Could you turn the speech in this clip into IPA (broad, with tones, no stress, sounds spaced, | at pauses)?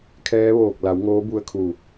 kʰ ɛː˧˥ ʋ oː˧˩ k̚ l a˩˧ w ŋ oː˧˥ b u˧ ə̯ kʰ u˧˩